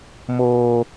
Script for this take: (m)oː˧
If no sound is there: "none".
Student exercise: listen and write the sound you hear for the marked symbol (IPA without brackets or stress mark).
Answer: m